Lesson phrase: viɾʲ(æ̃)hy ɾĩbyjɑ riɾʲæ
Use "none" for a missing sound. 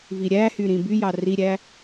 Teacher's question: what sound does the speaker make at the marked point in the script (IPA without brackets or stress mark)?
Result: æ